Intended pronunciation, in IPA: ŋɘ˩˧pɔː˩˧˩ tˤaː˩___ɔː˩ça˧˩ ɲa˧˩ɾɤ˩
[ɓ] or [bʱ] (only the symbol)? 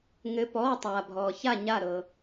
bʱ